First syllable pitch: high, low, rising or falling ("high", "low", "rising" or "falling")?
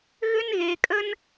high